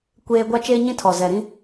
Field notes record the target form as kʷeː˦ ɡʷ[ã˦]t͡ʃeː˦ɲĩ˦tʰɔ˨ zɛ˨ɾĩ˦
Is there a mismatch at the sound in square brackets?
yes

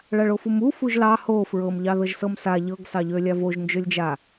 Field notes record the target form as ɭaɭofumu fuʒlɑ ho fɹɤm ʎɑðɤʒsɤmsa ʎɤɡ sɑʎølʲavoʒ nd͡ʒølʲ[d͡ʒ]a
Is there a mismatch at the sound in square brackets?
no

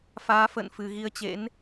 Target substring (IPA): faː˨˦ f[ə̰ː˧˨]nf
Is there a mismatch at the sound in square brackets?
no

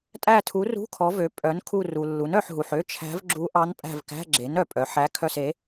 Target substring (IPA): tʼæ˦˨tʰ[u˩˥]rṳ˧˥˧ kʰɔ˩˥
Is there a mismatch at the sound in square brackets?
no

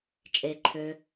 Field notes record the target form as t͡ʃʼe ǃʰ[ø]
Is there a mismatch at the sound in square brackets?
no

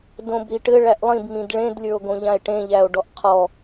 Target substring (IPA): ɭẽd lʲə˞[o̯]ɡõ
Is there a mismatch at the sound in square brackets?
no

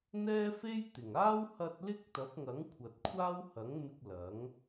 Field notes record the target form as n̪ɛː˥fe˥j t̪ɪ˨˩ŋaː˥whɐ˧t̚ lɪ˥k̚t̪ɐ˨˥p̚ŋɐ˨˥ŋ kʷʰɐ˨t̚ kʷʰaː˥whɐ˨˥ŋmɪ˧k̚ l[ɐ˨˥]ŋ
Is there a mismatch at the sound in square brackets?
no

